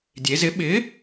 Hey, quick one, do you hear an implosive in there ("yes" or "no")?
yes